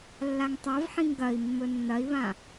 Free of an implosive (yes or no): yes